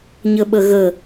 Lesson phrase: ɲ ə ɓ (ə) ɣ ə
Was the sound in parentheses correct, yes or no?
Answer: yes